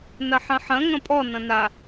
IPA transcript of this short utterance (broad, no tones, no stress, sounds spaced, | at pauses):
n ɐ ħ ɐ̃ ħ ɐ̃ ŋ ɐ̃ pʼ ɔ n ɐ̃ n a